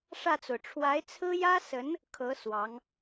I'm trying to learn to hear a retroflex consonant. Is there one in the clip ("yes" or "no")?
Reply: yes